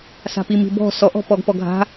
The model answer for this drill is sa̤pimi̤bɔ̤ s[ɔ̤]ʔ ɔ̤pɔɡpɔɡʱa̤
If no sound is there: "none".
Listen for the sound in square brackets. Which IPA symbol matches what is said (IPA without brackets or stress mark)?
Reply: ɔ